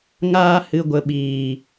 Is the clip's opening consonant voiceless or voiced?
voiced